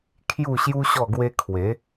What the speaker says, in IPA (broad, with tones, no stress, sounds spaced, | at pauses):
kʰ j u˥˧ ɕ j u˦ ɕ ɔ˥˧ ɡ w e˦ kʰ w e˨˦